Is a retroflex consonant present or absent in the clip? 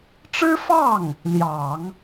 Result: present